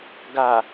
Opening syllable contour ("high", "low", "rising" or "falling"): low